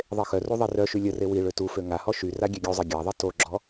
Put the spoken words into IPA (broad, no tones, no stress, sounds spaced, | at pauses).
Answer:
ðˤ e x œ r u ðˤ e r œ ʃ y lʲ ə r e w i ɭ ø t u f ø ŋ a h ɔ ʃ y r a ɡʲ ɛ ɡʲ u zˤ i ɡʲ a ðˤ i t o ɡ͡ǁ ɔ